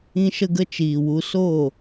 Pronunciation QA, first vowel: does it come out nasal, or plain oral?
nasal